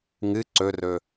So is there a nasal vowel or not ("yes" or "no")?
no